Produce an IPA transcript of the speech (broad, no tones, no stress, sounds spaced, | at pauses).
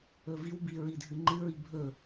ɵ v i w b i ɹ i dʱ ɨ ŋ͡ǃ ɨ ɹ i bʱ ɵ